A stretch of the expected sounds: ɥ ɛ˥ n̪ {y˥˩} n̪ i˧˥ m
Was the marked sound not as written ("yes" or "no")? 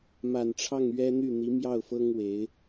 no